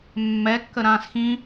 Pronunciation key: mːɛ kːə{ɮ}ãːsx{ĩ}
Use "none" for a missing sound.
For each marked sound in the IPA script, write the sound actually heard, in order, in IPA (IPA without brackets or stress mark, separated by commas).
ɾ, ĩ